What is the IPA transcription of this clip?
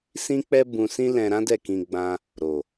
sĩ˦k͡pɛ˦ bũ˧sĩ˦lɛ̃˧ ɾã˦dɛ˦˨kĩ˧ ɡ͡bã˧ | ɾo˨

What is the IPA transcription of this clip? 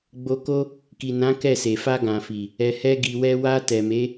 ɡ͡bo˧ko˦ | ki˨nã˨˦ kɛ˦˨se˨ fa˧ ɡã˨fi˨ | ɛ˨hɛ˧ɡi˨wɛ˧ wa˧tɛ˨me˨˦

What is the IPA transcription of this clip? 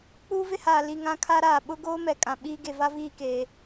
k͡puː˦vɪ˦haː˨ li˨ ŋã˦kʰa˦ɾaː˨ ɓʊ˦ɡoː˦mɛ˨ kʼã˨ɓiː˦ ɡe˨va˦viː˦˨keː˨

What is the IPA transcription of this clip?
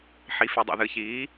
ħi˩˧fy˩dˤḭ˩ ðɨ˩çiː˩˧

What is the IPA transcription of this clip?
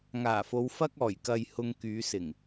ŋaː˨˩fo˨˧w fɐ˧k̚ɔː˨˩jkɐ˨j hʊ˧ŋkyː˨˧sɪ˨˩ŋ

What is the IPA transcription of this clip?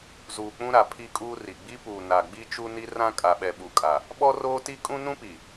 zuː˨k͡pũ˦ɾa˨ pʰi˦kʼuː˦ ri˨ ɡ͡bi˦puː˨ na˨ ɡ͡bi˦t͡ʃu˦ni˦ rã˦kʼa˨ɓɛ˨ ɓu˨kʼa˨ | ɓɔ˦roː˦ti˦ kʼũ˦nũ˦pi˨

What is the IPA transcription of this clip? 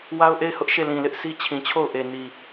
wa˦ʊ̯ʔe˦˨ɪ̯hʊ˦ʔ ʃe˦˨lĩ˨lɪ˦ʔsʰi˦ t͡ɕʰĩ˨t͡ɕʰo˦˨ʊ̯ʔe˨ ni˨

